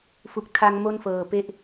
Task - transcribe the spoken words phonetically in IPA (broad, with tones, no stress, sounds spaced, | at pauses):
f u˨˩ k̚ tʰ a˧ ŋ m o˥˩ n f ɤː˨˩ p e˥˩ ʔ